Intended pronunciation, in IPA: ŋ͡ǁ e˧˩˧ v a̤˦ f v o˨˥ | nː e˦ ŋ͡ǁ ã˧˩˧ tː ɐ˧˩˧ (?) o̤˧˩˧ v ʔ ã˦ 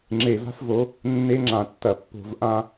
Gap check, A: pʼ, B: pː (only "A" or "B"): B